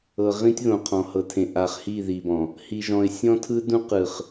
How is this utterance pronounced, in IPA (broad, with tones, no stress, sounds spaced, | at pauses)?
ɤ˨ ʁ ĩ˦ tʲ ð õ˨ qʰ ɔ̃˨ h ɤ˨ tʰ ẽ˨ ʔ a˨ χ h i˦˨ ð i˨ b ɔ̃˨ | h i˨ ʒ ɔ̃˨ ɪ̯ sʲ ɔ̃˦ tʰ ɯ˦ d ũ˦ q ɯ˨ χ